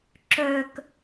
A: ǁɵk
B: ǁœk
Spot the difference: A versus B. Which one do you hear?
B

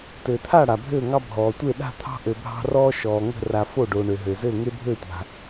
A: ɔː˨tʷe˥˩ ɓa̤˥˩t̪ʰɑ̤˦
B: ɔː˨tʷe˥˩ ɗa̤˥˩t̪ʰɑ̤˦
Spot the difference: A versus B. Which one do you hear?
B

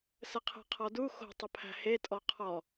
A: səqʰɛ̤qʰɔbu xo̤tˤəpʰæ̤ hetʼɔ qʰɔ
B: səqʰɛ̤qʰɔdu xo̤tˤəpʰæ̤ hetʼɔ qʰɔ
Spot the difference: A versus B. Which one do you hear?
B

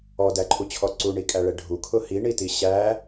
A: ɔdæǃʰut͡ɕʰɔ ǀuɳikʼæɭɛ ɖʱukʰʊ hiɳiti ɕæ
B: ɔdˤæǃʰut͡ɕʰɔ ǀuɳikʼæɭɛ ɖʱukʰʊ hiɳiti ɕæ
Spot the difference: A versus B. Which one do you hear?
A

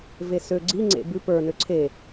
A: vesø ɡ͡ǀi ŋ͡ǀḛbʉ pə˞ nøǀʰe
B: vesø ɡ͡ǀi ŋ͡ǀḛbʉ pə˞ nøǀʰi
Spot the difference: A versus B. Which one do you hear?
A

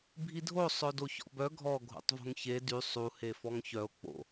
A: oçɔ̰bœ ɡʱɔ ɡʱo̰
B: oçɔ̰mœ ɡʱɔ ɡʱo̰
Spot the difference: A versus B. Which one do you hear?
A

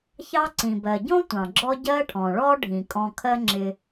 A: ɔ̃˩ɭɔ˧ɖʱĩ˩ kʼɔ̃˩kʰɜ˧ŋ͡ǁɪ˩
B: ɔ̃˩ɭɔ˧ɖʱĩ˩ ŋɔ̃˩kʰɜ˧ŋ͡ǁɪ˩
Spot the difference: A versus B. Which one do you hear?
A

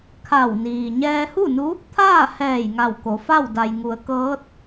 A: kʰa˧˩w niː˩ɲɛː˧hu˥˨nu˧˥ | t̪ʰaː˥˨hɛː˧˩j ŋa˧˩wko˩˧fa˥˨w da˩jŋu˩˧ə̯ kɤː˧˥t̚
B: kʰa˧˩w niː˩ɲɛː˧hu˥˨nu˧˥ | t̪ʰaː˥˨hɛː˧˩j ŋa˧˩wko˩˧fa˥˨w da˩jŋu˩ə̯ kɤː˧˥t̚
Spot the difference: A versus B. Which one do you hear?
A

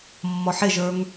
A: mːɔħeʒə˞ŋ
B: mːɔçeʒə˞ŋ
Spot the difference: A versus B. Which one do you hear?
A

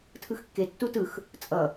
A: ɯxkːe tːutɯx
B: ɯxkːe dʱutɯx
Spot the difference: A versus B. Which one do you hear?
A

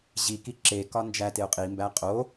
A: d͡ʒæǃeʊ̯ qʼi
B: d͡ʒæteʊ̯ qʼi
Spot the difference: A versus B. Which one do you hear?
B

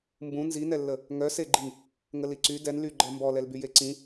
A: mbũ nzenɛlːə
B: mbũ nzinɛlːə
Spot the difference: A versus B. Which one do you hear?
B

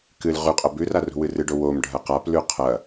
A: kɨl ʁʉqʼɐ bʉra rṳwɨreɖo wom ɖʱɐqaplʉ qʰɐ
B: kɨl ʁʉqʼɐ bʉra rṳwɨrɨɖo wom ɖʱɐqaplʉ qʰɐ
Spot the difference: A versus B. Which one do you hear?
B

